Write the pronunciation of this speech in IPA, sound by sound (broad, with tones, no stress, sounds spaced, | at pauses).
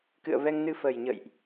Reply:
k ɨ̰˧˨ ə̯ v ɛ˧ ŋ n ɨ˧ f ə˨˩ j ɲ ə̰˧˨ j ʔ